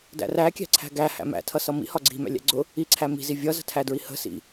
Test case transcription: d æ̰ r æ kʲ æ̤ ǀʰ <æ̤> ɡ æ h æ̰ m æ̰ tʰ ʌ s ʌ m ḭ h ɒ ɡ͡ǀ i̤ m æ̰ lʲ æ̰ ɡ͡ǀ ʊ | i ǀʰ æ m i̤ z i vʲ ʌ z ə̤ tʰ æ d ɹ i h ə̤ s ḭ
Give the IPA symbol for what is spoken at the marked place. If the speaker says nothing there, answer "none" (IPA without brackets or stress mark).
æ̤